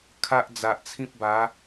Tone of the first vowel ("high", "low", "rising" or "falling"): high